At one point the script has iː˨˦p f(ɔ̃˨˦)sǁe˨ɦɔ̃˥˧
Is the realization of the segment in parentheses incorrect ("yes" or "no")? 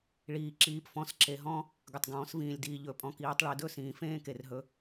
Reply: no